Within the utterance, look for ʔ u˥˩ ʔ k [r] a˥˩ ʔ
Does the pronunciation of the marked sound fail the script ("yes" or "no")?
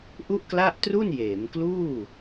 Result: yes